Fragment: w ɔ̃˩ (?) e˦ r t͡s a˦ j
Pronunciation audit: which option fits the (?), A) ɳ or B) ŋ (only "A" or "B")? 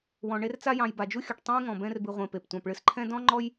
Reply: A